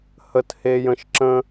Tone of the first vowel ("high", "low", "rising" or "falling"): low